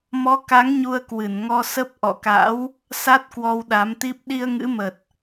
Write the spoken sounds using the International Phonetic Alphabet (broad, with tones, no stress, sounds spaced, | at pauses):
m ɔ˨˦ k a˨˦ ŋ ɲ u˧ ə̯ k w ɨ˧˩ n ŋ ɔ˧ s ə˦˥ p̚ ʔ ɔ̰˧˨ k a̰˧˥ w | s a˦˥ t̚ k w ɔ˧ w ɗ a˨˦ m t̪ i˦˥ p̚ ɗ i˧ ə̯ ŋ ɨ̰˧˥ m ə˨˩ t̚